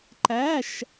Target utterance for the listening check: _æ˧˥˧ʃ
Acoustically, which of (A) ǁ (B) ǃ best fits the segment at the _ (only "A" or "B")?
B